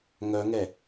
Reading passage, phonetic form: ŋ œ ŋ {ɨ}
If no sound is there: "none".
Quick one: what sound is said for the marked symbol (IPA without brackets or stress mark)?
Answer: ɛ